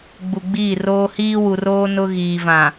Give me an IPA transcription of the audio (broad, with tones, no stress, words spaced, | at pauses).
ɡ͡bu˨ɡ͡biː˦˨roː˦ hiː˦wu˨roː˦ nʊ˦ ɣiː˨vã˨